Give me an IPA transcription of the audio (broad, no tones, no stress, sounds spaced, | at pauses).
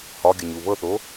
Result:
h ɒ ɡʲ ə ɲ u β ɤ θ o